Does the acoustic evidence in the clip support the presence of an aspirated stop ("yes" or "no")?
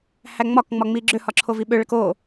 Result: yes